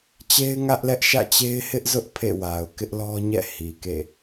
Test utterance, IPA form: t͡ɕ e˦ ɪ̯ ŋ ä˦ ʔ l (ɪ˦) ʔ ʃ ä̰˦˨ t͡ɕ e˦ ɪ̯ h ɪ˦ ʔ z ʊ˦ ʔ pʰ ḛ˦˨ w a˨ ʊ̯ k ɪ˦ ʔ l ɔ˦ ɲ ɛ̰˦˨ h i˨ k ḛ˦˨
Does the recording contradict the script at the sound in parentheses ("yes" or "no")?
yes